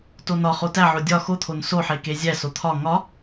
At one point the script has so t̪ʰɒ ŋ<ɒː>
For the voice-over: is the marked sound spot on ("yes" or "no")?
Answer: no